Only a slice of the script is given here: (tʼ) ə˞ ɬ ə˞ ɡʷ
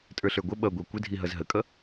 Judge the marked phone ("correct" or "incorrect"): correct